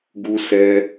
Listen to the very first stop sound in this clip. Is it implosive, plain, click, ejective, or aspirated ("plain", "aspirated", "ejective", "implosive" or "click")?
plain